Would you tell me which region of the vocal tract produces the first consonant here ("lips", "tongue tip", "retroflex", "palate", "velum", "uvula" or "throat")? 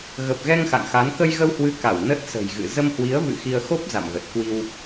velum